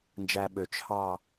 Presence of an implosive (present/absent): present